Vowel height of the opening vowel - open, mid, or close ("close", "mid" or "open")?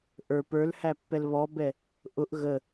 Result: mid